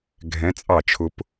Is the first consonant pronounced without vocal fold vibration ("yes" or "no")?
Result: no